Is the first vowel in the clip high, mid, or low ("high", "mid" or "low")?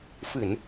high